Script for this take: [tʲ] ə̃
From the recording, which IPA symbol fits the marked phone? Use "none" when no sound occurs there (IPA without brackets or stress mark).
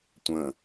tʷ